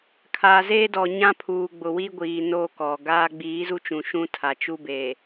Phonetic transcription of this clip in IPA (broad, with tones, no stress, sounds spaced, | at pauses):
kʰ aː˨ z eː˦ d ɔ˨ ɲ ã˦ pʰ uː˨ ɡ͡b ʊ˨ w iː˦ ɡʷ iː˨ n o˦ k ɔ˨ ɡ aː˦ ɡ͡b iː˨˦ z u˦ t͡ʃ ũ˨ ʃ ũ˦ tʰ a˨ t͡ʃ u˦ b e˨